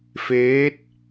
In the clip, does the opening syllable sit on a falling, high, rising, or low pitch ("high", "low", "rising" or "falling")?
rising